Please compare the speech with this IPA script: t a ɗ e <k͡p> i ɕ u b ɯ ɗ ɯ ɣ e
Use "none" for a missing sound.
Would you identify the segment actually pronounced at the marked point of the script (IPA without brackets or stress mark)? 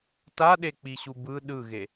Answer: k͡p